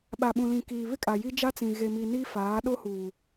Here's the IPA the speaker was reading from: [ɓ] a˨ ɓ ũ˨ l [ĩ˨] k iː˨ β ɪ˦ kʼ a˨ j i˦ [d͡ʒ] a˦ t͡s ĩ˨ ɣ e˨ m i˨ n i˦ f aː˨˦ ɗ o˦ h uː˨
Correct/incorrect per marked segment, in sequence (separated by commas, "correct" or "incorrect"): correct, correct, correct